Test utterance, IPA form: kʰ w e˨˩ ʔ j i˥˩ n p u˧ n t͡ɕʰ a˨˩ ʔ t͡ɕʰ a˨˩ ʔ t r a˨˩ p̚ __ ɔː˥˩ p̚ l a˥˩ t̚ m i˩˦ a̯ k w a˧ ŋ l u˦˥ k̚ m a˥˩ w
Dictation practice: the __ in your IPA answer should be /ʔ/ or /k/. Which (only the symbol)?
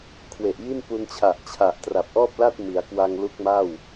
ʔ